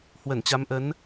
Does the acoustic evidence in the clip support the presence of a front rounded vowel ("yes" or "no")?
no